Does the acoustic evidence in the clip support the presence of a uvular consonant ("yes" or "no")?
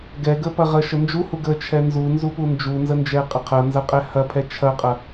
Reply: yes